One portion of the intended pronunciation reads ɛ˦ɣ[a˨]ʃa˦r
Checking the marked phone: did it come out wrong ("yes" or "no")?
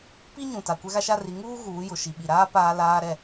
yes